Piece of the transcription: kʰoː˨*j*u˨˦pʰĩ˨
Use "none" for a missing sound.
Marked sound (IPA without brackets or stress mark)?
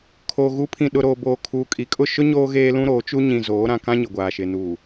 ɣ